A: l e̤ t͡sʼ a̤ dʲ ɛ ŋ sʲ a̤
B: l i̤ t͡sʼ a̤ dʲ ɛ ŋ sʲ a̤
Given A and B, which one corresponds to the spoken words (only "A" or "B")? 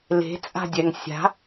A